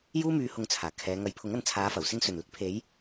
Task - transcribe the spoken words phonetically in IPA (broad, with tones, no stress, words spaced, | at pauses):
juː˥myː˧ hʊ˧ŋt͡sʰaː˨˩ kʰɛː˨˧ ŋɐ˨˥jpʰʊ˨˥ŋɐ˧n t͡sʰaː˨˧fɐ˨˩wsɪ˧ŋ sɵ˨˩nlɪ˨˥k̚pʰe˨˧j